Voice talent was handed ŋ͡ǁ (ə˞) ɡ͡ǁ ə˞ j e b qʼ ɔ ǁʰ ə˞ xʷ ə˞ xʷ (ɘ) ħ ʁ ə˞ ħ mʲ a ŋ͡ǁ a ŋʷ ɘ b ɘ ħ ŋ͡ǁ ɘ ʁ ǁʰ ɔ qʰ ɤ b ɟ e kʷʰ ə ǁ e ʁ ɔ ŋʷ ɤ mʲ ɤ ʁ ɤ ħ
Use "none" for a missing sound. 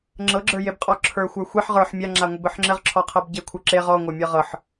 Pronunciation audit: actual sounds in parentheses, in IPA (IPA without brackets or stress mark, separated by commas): ɤ, e